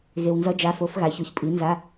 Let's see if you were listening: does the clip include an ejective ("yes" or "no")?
yes